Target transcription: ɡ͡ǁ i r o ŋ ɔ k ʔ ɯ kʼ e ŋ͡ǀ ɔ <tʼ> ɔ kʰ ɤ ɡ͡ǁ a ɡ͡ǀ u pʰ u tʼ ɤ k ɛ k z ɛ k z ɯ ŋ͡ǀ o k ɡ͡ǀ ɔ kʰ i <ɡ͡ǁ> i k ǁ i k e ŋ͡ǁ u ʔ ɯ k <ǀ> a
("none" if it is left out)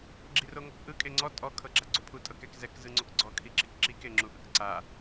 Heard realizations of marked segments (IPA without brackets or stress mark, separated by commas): tʼ, ǁ, ǀ